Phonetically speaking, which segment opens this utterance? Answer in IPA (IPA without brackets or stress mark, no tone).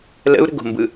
l